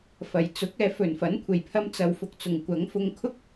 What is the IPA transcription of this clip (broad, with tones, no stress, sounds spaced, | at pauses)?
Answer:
f ɐ˨˩ j t͡s ʊ˨˥ k̚ ɛː˨˧ f ɵ˨˩ n f ɐ˨˥ n kʷʰ e˨˩ j pʰ ɐ˧ m t͡s ɐ˨ w f ʊ˧ k̚ t͡s ʊ˨ ŋ kʷ ɐ˨˥ ŋ f ʊ˧ ŋ kʰ ʊ˥ k̚